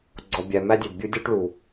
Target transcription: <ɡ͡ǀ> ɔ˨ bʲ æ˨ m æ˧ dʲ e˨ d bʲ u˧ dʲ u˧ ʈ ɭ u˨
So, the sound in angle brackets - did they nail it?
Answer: yes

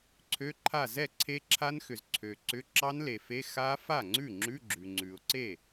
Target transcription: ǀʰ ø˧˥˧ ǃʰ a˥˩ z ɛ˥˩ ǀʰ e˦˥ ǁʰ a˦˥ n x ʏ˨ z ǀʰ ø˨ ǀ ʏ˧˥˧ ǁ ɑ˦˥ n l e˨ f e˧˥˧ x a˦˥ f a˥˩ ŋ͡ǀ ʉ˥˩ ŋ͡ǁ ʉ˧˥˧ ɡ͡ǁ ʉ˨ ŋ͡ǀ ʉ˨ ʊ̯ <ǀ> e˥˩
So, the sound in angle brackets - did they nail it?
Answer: yes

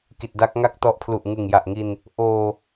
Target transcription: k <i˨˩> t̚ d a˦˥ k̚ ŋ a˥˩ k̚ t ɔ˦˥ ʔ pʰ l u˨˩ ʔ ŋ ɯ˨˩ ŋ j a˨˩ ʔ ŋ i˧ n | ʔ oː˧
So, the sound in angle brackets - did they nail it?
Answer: yes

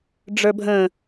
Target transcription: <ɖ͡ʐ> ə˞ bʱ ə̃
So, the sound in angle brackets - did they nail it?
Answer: yes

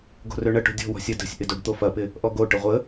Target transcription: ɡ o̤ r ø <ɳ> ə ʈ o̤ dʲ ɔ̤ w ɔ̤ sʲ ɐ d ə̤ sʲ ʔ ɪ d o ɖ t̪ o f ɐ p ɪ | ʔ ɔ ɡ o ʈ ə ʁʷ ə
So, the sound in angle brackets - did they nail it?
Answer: yes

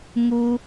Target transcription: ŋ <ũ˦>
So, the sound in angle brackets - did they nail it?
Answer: no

